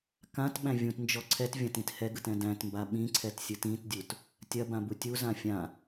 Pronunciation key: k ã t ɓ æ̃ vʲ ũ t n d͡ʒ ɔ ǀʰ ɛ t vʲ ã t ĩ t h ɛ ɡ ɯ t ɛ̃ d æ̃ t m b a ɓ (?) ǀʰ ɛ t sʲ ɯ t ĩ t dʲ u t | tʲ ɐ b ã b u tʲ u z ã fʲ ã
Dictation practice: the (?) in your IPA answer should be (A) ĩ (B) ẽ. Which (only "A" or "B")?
A